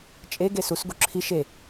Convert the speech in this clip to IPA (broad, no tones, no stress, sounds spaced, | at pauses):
t͡ʃʼ e ɡ e s u s ɡ u ǁʰ i ʃ e